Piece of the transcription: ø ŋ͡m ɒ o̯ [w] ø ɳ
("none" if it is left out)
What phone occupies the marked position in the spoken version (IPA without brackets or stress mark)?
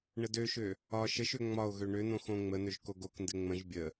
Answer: ɣ